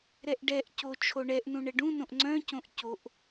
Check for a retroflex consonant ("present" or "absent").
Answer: present